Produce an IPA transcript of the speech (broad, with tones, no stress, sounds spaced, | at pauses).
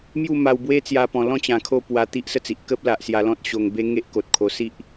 m j u˥˧ m a˧ w b w e˦ t͡s j a˧ p ɔ̃˨˩ l ɔ̃˥˧ t͡ɕ ã˨˩ kʰ o˥˧ p w a˧ t̪ i˦ ʔ s ə˥˧ t͡s i˨ ʔ k ə˦ p̚ l a˨ ʔ s j a˧ l ɔ̃˦ t̚ ɕ o˧ ŋ b e˦ ŋ e˦ ʔ k o˨ t̚ kʰ o˧ s i˦ ʔ